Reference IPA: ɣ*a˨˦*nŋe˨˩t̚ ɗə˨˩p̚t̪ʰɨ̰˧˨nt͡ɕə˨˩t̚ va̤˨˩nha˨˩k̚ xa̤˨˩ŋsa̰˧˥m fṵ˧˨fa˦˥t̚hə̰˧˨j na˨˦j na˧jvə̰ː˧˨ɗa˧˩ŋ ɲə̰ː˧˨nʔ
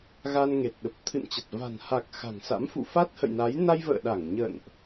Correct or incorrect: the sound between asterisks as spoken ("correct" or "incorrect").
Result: incorrect